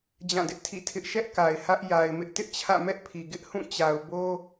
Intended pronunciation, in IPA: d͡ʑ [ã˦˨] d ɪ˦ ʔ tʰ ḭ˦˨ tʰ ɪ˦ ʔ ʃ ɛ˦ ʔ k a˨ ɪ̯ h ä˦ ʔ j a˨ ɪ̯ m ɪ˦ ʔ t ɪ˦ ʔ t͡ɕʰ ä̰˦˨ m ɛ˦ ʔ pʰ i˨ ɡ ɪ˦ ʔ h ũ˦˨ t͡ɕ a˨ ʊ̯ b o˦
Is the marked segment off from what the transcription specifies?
no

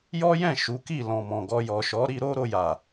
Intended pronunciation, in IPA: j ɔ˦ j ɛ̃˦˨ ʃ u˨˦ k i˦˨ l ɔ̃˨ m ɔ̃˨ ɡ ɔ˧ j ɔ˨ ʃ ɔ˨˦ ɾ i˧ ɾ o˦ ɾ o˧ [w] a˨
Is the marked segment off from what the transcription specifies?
yes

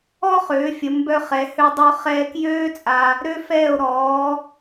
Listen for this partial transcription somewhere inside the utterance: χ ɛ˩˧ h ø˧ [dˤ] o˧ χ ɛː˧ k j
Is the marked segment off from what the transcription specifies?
no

